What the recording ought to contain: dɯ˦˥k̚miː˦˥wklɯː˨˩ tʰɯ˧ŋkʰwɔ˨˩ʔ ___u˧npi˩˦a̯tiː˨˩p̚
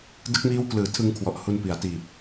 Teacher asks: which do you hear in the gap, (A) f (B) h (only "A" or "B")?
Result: B